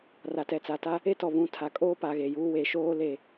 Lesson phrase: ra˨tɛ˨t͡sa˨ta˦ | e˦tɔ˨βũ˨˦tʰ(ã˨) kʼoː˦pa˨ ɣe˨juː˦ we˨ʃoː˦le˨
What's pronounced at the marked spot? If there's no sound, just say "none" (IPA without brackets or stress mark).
a˨